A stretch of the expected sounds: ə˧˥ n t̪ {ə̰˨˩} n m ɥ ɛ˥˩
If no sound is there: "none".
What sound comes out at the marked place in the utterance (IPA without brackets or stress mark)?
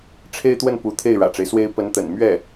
ə̰˨˩